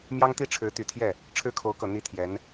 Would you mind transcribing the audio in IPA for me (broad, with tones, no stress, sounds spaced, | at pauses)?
m j ɑ˥ ŋ t̪ i˥˩ ʈ͡ʂʰ ɻ̩˧˥ t̪ y˨˩ t̪ʰ j ɛ˥˩ | ʈ͡ʂʰ ɻ̩˥ kʰ o˧˥ ʊ̯ k ɤ˨˩ n̪ i˧˥ t̪ʰ j ɛ˧˥ n